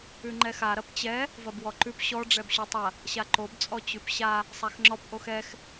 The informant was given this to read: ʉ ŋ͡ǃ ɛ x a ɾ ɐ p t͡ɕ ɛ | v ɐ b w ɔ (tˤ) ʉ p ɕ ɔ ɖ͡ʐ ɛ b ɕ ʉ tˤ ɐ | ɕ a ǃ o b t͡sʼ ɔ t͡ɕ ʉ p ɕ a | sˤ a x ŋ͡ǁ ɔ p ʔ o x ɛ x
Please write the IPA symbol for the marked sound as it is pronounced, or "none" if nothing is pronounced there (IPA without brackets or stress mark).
ǃ